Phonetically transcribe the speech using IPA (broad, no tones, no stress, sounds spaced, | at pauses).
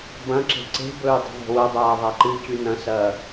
b ɐ̃ ǁ e̤ ǀ e̤ b ɵː dˤ e̤ ðˤ o̤ w ɐ dˤ aː ðˤ a ǃ ɨ c ʉ n ɐ̃ s ɐː